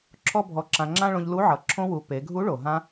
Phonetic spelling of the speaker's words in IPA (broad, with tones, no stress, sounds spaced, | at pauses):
ǁʰ ɔ˥ bʱ ɔ˧ ǁ ã˧ ŋ͡ǁ ã˥ ɭ õ˧ ʎ l u˧˥ ʕ ʌ˩˧ ǁʰ õ˧ w u˩˧ p e˩˧ ɡʱ u˧˥ ɭ o˩ ɦ ã˧